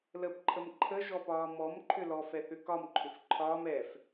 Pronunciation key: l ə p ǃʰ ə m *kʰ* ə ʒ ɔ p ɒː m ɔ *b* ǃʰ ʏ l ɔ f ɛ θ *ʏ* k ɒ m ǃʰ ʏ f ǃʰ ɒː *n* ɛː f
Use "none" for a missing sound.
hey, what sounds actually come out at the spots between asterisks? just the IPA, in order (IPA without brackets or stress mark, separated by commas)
ǃʰ, m, ʏ, m